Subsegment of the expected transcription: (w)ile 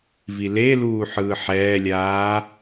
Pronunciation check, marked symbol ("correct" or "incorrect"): incorrect